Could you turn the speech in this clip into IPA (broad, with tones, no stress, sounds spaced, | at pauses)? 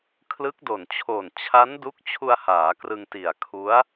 kʰ l ɯ˦˥ k̚ d o˨˩ n t͡ɕʰ oː˨˩ n t͡ɕʰ a˦˥ n d u˦˥ k̚ t͡ɕʰ u˧ a̯ h aː˩˦ k r ɯ˧ ŋ t i˨˩ a̯ kʰ u˦˥ a̯